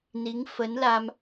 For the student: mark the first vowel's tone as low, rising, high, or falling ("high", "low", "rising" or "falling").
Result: rising